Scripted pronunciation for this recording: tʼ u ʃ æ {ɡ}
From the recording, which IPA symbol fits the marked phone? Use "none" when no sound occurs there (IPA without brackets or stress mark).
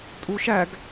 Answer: ɡ